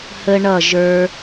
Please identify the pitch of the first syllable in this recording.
high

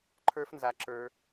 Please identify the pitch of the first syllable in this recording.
high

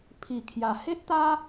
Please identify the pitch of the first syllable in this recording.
low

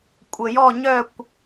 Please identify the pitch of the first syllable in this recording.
low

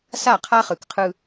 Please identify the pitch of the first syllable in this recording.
falling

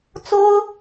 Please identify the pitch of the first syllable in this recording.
high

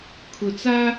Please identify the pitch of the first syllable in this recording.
low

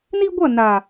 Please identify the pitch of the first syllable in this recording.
high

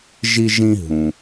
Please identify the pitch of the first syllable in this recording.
high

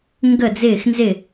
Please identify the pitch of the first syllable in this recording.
falling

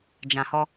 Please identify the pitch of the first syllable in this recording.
low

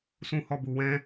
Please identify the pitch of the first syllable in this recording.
high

